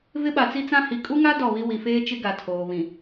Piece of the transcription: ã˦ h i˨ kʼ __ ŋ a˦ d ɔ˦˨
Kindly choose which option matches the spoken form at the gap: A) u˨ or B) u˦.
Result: B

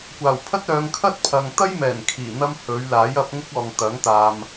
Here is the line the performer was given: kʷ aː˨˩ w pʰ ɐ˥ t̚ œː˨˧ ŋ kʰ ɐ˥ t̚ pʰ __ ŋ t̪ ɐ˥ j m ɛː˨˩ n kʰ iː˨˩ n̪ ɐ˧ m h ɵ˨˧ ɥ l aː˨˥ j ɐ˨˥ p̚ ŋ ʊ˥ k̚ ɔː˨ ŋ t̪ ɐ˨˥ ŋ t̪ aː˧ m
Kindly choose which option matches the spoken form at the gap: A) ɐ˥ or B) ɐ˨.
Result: B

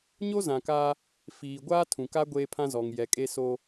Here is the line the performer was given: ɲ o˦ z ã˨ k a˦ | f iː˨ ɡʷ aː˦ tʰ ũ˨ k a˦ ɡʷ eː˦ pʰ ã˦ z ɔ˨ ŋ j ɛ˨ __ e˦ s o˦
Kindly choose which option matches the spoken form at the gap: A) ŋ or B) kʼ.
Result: B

